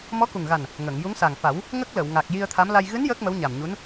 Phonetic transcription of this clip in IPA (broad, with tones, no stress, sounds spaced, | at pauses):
m ɔ˧˥ k u˨˩ ŋ ɣ a˨˩ n | ŋ ə˨˩˨ ŋ j u˧˥ ŋ s a˨˩ ŋ f a˨˩˦ w | ŋ ə˦˥ k̚ l ə˨˩˨ w ŋ a˨˩ k̚ j i˧ ə̯ t̪ʰ a˧˥ m l a˧ j ɣ ɨ˧˥ n j əː˦˥ k̚ m ə˧˥ w ɲ a˨˩ m ɲ u˧˥ n